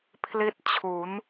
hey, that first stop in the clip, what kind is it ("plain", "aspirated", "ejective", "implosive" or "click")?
aspirated